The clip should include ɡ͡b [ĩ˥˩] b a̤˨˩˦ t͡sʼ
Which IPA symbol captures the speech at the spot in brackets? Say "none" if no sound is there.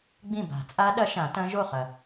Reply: ĩ˥˩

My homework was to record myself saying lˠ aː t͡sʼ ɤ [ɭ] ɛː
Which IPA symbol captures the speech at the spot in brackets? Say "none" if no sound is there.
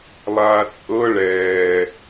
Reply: ɭ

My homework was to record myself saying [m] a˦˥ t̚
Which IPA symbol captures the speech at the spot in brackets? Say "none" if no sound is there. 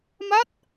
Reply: m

